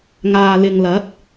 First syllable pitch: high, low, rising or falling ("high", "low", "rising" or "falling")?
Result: low